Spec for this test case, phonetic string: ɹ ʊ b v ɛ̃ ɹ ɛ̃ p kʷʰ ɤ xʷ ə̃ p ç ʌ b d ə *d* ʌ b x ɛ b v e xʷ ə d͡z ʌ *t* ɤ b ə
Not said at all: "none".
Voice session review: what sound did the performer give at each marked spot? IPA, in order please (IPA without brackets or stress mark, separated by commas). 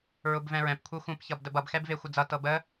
b, t